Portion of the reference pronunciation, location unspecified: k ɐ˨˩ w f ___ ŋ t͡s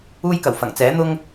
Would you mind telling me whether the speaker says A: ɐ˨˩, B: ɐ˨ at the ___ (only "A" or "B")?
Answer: A